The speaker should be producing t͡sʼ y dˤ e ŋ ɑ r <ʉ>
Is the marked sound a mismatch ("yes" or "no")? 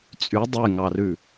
no